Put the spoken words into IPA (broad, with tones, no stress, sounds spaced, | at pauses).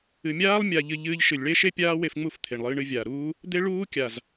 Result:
ɨ˨ mʲ aː˦ lˠ mʲ a˧ ʎ ɨ˧ ʎ ɨː˧ ʎ ʃ ɨ˨ lʲ ɭ e˦ ʃ e˦ pʲ aː˦ w e˧ f ŋ͡m u˦˨ f t̪ʰ e˨ ɳ lˠ ɨː˧ ɳ ɨ˧ vʲ aː˨ ɾ uː˦ | d̪ e˦ ɭ uː˦ kʲ a˨ z